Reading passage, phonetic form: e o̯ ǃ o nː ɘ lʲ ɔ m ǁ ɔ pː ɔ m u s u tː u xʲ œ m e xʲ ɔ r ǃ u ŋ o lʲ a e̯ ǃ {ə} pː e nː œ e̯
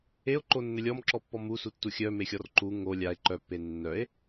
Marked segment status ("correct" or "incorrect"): incorrect